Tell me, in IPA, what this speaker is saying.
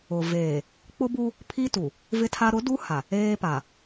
ʊ˨ v eː˨ | k͡p ʊ˦ b u˦ | pʰ i˦ t u˨ | v ɪ˦ tʰ a˦ ɾ ʊ˨˦ d u˦ h a˨ | eː˦ p a˨

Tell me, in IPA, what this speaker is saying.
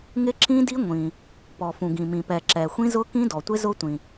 ŋ ɪ˦˥ ǁ ĩ˦˥ d i˦˥ ŋʷ ĩ˩ | p ɔ˩ f ũ˩ ɡ ĩ˩ m ĩ˩ p ɛ˩ ǁ ɛ˩ xʷ ĩ˦˥ z ʊ˦˥ k ĩ˦˥ d ɔ˩ tʷ ɪ˦˥ z ʊ˦˥ tʷ ĩ˩

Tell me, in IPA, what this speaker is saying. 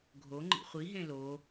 ɡʱ o ŋ͡ǃ ḭ χʷ i ɦ ẽ l o

